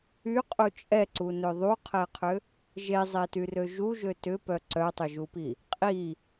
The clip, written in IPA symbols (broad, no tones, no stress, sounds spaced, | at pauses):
y qʼ u t͡ʃʼ ɛ ǀ u n ø ðˤ u qʰ ɛ qʰ ʏ | ʒ e zˤ e t y r ø ʒ u ʒ ø t ʏ p œ ǀ œ tˤ ʏ ʒ u p i | qʼ i